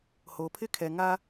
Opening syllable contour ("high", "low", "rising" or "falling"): low